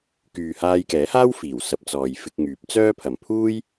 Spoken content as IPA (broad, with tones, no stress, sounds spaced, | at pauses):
k yː˨ h aː˧ j k ɛː˨˥ h aː˥ w f iː˨˩ w s ɐ˨ p̚ t͡s ɔː˨ j f ɪ˧ k̚ ŋ yː˨˥ p̚ t͡s œː˥ pʰ ɐ˨ m pʰ uː˥ j